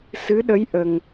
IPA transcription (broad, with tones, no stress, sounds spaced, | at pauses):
s ɨ˧˥ ɗ ə˧˥ j ʔ ə˨˩ ŋ